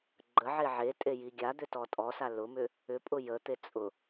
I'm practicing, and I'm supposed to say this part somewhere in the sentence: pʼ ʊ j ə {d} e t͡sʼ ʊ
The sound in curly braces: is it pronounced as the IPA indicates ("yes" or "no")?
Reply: no